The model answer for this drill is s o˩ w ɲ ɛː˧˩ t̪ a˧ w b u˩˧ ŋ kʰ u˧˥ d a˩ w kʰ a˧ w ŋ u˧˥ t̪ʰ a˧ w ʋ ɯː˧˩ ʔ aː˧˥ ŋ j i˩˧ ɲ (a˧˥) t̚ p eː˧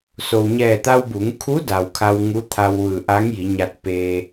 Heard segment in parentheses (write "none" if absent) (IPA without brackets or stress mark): a˧